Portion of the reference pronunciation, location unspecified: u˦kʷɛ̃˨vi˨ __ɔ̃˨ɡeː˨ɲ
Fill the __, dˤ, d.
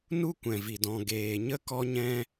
d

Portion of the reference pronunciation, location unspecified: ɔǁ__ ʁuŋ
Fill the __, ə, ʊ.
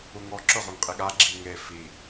ʊ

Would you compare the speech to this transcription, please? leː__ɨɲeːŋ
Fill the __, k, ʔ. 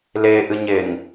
ʔ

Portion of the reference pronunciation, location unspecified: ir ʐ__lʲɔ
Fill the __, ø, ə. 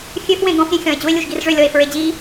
ø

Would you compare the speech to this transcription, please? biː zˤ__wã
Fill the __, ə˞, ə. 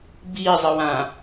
ə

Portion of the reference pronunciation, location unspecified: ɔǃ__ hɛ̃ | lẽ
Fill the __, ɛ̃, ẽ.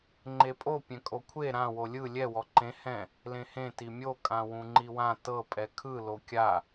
ẽ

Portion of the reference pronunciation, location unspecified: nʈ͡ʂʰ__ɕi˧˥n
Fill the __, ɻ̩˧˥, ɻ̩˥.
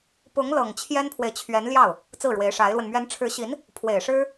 ɻ̩˧˥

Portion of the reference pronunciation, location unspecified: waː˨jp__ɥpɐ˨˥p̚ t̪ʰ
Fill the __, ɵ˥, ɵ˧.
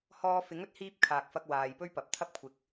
ɵ˥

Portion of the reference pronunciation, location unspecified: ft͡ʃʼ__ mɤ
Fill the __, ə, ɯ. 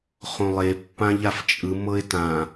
ɯ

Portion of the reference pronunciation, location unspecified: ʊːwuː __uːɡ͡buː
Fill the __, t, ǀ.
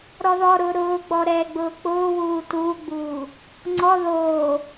t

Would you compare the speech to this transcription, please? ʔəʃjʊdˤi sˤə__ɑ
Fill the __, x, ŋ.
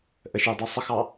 x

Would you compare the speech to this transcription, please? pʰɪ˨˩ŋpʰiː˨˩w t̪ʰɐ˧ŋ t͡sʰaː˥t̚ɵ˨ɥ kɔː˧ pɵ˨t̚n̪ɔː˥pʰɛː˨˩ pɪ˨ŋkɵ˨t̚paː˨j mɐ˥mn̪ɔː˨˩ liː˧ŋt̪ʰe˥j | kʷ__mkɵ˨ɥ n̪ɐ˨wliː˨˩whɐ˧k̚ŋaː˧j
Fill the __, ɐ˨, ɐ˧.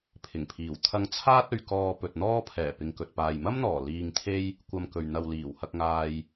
ɐ˧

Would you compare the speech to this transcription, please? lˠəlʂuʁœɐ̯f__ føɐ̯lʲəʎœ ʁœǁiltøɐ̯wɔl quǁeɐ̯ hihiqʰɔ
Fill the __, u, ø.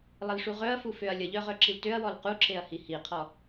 u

